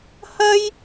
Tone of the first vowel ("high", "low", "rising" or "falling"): high